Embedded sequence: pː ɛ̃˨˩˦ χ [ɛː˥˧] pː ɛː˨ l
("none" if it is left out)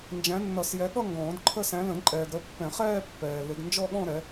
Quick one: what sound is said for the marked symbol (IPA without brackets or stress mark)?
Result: ɛː˥˧